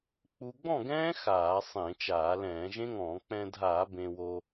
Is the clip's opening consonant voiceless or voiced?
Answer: voiceless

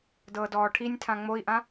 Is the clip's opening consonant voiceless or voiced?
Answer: voiced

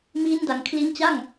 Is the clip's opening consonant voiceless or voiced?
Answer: voiced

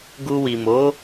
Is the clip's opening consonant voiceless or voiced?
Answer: voiced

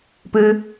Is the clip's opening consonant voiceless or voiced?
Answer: voiceless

